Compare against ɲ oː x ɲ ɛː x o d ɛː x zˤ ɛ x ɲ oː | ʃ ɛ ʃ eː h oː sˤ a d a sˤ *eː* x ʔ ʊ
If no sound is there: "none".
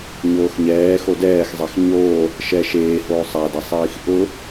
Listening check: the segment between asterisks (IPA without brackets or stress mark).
iː